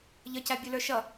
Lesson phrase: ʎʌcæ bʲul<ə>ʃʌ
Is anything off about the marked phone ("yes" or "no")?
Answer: yes